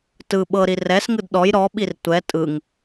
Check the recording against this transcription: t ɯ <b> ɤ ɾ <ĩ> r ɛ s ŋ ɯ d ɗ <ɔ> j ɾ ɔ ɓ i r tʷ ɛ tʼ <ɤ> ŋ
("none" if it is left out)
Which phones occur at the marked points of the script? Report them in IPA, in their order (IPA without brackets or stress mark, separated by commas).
ɓ, i, ɔ, ɯ